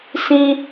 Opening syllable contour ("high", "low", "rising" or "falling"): high